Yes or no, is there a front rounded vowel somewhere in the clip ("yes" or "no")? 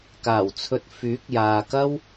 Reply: yes